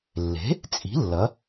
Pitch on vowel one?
rising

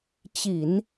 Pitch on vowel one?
low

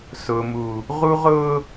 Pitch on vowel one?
low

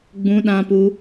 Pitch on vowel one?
high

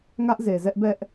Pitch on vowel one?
high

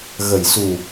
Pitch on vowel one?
low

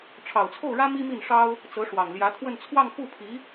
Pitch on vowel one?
low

